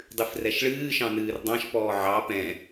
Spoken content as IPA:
dˤ ɨ f r ɛ ʃ ɭ ɨː ʃ ɑ̃ n ɨː r dˤ ɑ̃ ʃ p ɔː ʕ ɑ p ɛ̃

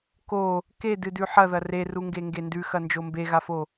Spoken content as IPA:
k o | k e d ɨ d ʉ ħ ɐ ð ɐ r e r u ŋ ɡ e ŋ ɡ e n d ʉ x ɐ n d͡ʒ o m b e ɣ a f o

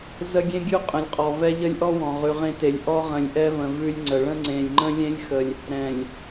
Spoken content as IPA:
z ə˦ ɡʲ ẽ˦ ɡʲ ʉ˦ qʼ ə̃˨ lʲ qʼ ɔ˨ v ɛ˦ ʎ ə˦ lʲ ʔ ɔ˦ w ɔ̃˨ ʁ ʉ˨ ʁ ẽ˦ t e˨ lʲ ʔ ɔ˦ ʁ ə̃˨ lʲ ʔ ɛ˦ v ə̃˨ v ʉ˦ lʲ ŋ͡ǀ ə˨ ɭ ə̃˦ ŋ͡ǀ ẽ˨ lʲ ŋ͡ǃ ə̃˦ lʲ ẽ˦ lʲ x ə˨ lʲ | ɾ ɛ̃˨ lʲ

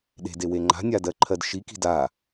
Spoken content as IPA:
ɗ e̤ d e w e ŋ͡ǃ a̤ nʲ a d ɜ ǃʰ ɜ d ʃ i k i̤ d a

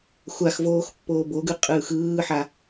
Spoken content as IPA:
xʷ a x v oː x pː oː b o ɡ ɯ qʼ ɯː x ɯː ħ a

